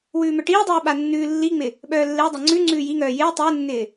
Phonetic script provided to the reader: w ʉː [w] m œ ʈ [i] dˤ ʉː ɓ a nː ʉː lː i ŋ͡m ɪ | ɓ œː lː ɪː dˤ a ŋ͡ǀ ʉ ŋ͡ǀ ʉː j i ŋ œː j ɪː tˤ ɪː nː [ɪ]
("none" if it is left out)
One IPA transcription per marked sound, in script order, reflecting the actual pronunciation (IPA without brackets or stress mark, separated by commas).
none, iː, ɪː